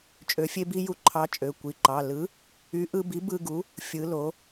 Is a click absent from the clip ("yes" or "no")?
no